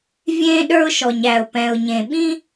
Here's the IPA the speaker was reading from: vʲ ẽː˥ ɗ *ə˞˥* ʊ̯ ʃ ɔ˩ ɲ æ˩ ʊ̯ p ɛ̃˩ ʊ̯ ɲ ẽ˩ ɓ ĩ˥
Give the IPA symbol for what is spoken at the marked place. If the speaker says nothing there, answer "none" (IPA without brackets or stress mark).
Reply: ə˞˥